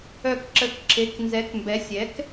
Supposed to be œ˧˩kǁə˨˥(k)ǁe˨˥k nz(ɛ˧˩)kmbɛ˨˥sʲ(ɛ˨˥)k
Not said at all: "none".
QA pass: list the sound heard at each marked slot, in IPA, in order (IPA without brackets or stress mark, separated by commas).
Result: k, ɛ˨˥, ɛ˨˥